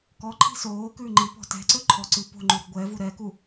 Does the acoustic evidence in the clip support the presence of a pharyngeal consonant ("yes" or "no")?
no